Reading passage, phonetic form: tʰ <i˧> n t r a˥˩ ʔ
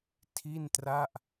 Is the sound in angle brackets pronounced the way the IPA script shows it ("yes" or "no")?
no